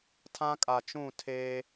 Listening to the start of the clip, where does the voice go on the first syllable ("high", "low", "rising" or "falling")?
high